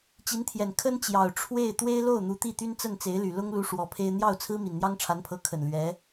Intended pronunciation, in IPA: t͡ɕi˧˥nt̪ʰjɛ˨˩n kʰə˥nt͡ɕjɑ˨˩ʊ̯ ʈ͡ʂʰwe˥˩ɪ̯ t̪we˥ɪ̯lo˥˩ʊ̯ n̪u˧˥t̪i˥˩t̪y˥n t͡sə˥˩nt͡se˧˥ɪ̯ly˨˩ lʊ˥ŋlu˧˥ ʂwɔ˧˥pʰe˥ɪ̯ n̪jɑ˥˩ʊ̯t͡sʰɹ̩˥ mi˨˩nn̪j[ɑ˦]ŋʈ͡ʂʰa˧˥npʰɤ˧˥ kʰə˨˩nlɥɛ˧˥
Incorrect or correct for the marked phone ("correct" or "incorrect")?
incorrect